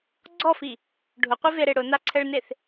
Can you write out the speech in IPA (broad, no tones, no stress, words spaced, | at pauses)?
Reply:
ɡ͡ǀɔfi | ɖʱʊqʷiveɾe ɽʊnaǀʰɛɭneθ